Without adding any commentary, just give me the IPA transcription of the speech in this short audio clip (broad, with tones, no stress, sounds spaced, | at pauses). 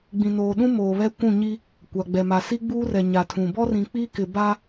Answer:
ɡ͡b ĩ˨ n oː˨ ɗ ũ˦ m oː˨ β ɛ˦ kʷ ũ˦˨ ɲ i˦ | kʷ a˨ ɡ͡b ɛ˨ m a˨ s i˦ ɡ͡b uː˦ r ɛ˨ ɲ a˨ tʰ ũ˨ b ɔ˦ r ĩ˨ k͡p i˦ k ɪ˨ b a˦